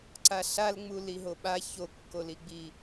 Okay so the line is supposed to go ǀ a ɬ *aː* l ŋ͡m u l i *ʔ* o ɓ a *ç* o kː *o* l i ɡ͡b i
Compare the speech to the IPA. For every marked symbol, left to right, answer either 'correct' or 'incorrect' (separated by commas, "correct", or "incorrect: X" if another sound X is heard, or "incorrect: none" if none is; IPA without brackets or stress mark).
incorrect: a, incorrect: ɦ, correct, correct